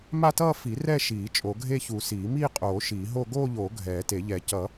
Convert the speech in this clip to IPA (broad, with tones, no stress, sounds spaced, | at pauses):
m a˥˧ t ʌː˥˧ f i˨˩˦ r ɛ˥˧ ʃ iː˨˩˦ t͡ʃʼ o˨˩˦ ɡʱ e˥˧ ç u˨˩˦ s iː˨˩˦ m iː˥˧ qʼ oː˨˩˦ ʃ iː˨˩˦ ɦ o˥˧ ɡ oː˥˧ ʎ oː˨˩˦ ɡʱ ɛː˨˩˦ t e˨˩˦ ʎ ɛ˨˩˦ c ʌ˨˩˦